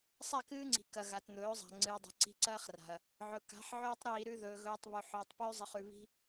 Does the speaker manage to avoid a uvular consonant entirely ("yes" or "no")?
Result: no